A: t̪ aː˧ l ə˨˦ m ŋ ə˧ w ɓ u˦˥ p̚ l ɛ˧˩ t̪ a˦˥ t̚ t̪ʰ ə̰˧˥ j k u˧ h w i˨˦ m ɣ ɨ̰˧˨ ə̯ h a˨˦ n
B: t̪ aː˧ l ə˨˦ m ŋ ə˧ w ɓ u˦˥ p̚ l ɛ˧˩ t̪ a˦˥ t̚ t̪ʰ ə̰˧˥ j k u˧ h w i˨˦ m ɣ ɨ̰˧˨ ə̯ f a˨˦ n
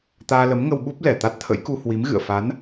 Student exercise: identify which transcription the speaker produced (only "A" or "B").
B